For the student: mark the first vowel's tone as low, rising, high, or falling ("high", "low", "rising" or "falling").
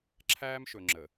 high